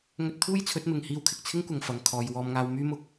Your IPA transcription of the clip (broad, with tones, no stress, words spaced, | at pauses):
ŋɵ˧t̚t̪ʰuː˥jt͡sʰɵ˨˥t̚mɪ˨ŋ hiː˧wkʰɪ˨k̚t͡sʰɪ˥ŋkʷɐ˨ŋ fɐ˨ŋ kʰɔː˨j wɔː˧mŋaː˧wmyː˥mʊ˧k̚